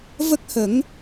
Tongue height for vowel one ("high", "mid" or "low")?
mid